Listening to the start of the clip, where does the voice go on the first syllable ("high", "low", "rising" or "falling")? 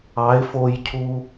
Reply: rising